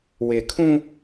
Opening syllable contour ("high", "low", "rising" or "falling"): low